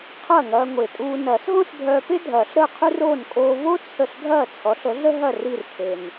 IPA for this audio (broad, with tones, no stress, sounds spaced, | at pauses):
qʰ ɐː˥˩ ŋ ɐː˧ ŋʷ e˨˩ tʼ uː˧ n ɐː˨˩˦ s ɦ õ˥ s bʱ œː˧ p e˥ dʱ ɐː˨˩˦ ɬ ɾ əː˥˩ qʰ y˥ r oː˥˩ n kʼ oː˧ v o˥ t͡sʰ ə˥˩ ɬ ɡʱ ɐː˥˩ t͡sʰ ɔ˩˥ ɬ ə˩˥ ɮ ə˥ ɦ ɐ˥˩ r i˥˩ r kʰ e˨˩ n